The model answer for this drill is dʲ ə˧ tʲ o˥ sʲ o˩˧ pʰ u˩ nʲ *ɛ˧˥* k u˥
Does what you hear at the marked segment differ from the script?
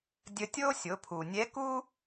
no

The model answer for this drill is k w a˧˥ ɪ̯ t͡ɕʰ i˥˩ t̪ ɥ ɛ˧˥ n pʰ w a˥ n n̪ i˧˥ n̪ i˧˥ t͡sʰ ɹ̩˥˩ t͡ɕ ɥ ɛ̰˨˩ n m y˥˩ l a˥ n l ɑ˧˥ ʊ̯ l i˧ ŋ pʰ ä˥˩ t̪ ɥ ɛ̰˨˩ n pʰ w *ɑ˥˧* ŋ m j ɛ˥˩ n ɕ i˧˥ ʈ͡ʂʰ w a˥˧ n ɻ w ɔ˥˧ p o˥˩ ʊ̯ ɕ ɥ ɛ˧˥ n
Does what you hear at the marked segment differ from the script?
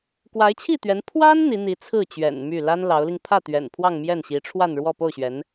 no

